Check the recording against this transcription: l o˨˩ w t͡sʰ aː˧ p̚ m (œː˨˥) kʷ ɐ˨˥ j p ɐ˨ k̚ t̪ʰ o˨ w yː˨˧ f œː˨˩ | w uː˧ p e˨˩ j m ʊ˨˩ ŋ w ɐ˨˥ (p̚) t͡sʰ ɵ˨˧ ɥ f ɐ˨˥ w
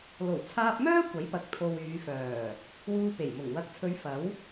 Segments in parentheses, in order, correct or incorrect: incorrect: œː˥, incorrect: k̚

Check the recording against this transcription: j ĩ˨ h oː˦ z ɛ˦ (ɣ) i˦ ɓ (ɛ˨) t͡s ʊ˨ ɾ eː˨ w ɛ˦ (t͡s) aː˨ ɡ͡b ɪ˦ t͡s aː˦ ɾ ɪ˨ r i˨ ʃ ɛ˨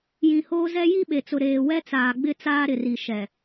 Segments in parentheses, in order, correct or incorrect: incorrect: j, incorrect: e˨, correct

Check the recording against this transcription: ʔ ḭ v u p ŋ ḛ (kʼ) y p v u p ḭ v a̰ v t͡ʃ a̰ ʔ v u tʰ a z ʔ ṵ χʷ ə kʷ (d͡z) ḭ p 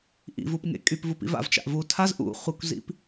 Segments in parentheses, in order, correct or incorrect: correct, incorrect: z

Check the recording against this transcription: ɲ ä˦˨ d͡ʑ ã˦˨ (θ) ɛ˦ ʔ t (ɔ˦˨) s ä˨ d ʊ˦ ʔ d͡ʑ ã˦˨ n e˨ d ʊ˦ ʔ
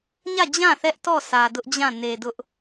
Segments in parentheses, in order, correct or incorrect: correct, correct

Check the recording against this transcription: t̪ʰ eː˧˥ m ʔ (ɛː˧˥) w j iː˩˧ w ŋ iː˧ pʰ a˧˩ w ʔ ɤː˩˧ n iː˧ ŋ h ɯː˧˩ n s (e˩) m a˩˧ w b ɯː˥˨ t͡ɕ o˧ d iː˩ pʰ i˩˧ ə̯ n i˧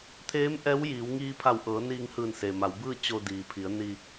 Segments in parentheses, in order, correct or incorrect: correct, correct

